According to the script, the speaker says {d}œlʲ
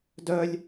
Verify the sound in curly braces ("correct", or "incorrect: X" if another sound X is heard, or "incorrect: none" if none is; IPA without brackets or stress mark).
correct